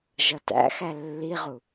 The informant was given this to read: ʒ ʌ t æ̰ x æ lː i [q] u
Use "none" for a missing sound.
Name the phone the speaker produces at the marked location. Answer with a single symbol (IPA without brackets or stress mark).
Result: ʁ